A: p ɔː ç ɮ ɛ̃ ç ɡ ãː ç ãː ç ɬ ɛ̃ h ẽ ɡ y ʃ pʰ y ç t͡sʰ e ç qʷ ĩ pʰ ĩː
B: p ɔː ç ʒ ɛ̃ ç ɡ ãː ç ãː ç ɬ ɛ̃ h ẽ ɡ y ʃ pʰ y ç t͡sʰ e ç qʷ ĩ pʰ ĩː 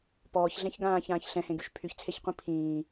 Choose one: A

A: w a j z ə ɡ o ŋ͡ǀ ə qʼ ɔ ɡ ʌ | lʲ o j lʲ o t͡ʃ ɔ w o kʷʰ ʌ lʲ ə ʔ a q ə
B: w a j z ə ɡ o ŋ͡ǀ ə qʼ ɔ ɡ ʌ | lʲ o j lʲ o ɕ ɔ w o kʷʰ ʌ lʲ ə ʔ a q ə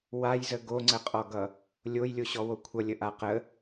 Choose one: B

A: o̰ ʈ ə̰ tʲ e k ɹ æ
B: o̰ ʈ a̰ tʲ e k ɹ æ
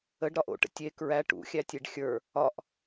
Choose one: A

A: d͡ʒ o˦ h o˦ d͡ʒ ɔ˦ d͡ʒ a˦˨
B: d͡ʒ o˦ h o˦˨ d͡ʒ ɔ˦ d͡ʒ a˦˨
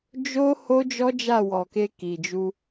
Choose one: A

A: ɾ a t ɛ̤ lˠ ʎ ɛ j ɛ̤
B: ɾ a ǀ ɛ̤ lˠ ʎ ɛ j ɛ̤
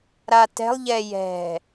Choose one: A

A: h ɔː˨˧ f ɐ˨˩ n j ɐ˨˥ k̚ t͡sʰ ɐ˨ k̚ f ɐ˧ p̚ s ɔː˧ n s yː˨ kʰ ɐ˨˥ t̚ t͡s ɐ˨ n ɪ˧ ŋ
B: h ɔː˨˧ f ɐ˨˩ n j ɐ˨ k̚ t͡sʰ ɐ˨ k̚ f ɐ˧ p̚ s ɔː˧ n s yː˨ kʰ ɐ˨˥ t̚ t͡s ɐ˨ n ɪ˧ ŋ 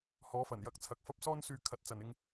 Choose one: A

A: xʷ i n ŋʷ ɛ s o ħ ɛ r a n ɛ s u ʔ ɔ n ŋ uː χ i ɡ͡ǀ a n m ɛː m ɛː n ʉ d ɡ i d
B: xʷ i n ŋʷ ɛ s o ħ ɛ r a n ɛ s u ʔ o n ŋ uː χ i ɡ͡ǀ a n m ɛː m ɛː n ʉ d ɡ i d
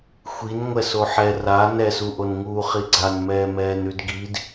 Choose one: B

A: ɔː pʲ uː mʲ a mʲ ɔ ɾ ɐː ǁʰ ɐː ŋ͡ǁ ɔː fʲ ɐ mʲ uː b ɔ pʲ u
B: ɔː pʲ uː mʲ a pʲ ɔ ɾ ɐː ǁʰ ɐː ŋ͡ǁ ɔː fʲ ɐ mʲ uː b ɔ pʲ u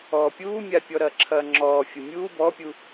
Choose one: B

